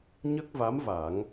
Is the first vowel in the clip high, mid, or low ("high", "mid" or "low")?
mid